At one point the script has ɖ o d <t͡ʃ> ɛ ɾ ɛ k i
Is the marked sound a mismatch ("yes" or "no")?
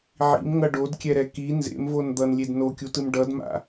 yes